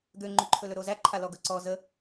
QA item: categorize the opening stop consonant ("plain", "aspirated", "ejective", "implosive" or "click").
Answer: plain